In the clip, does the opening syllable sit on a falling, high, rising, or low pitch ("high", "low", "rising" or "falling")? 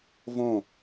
falling